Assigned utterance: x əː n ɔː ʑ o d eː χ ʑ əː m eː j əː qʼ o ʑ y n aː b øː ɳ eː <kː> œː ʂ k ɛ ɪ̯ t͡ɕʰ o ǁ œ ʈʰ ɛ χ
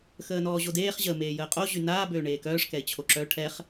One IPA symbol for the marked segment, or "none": k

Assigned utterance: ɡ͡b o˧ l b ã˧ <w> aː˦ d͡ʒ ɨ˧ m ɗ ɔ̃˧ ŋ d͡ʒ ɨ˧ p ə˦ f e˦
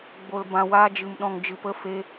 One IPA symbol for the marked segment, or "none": w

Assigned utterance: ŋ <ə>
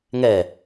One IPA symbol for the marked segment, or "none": ɛ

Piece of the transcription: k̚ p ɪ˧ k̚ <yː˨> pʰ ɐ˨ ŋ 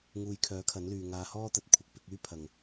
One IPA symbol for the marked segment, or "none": yː˥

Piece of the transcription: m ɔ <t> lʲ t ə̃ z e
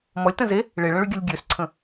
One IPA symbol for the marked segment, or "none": none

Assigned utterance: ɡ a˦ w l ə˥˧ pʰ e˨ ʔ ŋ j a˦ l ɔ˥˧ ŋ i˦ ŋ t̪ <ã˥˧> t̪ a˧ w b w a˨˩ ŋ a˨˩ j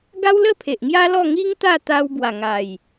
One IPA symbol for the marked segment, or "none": a˥˧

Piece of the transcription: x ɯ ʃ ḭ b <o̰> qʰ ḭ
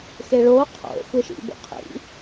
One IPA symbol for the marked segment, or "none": o̰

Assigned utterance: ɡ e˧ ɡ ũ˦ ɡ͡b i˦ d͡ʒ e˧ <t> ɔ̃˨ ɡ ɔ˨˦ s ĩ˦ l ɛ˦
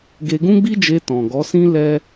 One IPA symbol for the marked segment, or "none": t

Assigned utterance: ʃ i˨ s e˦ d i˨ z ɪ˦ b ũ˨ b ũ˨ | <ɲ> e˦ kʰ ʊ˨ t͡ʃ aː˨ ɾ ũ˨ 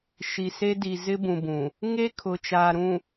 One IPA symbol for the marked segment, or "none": ŋ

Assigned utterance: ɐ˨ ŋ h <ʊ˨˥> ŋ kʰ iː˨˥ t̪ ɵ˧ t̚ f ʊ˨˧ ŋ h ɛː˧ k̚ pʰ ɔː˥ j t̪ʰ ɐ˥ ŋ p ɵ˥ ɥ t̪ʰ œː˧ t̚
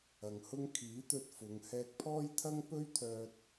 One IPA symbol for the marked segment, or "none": ʊ˥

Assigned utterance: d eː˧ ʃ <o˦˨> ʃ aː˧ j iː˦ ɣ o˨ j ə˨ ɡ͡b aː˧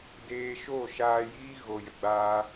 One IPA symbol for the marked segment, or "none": o˦˨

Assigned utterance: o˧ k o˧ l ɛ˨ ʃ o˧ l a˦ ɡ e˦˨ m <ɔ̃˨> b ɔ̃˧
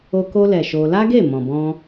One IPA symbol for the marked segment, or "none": ɔ̃˨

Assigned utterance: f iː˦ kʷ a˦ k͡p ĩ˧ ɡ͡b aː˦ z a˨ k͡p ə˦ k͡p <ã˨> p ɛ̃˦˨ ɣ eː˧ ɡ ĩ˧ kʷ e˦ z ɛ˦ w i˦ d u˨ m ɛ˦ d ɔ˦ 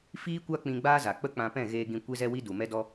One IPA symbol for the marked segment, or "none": ã˧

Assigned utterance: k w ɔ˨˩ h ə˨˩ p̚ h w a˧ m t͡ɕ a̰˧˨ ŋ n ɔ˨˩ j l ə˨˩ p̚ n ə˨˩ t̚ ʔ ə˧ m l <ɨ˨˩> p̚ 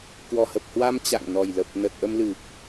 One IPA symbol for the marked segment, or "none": ɨ˨˩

